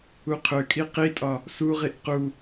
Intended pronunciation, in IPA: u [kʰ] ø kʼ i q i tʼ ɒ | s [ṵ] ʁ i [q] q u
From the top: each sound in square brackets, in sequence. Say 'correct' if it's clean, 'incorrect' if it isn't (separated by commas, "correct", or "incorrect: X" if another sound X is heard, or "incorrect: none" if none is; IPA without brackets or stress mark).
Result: incorrect: qʰ, incorrect: u, incorrect: ʔ